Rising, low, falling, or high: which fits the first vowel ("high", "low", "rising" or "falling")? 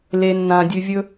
low